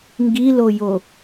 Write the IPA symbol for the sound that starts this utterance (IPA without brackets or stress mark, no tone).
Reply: ŋ